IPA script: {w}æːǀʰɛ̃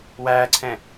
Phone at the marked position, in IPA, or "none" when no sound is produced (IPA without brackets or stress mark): w